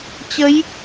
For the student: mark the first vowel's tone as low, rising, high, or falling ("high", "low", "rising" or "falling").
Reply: rising